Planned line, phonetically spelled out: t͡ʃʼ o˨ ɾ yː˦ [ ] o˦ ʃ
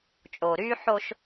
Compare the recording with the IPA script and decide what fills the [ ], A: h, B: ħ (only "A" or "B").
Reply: B